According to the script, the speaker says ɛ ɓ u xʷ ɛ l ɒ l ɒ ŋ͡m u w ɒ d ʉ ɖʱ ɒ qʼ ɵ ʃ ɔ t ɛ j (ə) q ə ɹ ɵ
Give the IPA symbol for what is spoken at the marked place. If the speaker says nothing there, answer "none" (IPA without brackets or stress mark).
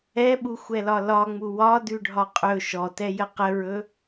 ə